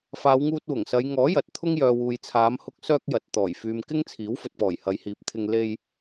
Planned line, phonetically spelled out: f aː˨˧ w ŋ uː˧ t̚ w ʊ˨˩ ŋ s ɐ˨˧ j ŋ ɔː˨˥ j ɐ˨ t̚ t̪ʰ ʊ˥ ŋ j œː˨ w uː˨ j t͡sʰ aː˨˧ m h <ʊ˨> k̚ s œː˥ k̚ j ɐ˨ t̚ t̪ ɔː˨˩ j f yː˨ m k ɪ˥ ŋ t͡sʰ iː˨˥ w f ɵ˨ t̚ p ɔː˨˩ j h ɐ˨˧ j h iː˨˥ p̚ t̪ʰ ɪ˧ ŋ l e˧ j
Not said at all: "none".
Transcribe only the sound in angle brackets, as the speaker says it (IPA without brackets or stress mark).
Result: ʊ˧